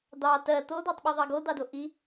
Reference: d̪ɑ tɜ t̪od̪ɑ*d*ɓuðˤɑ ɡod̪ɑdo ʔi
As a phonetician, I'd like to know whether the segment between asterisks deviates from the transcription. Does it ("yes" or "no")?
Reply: yes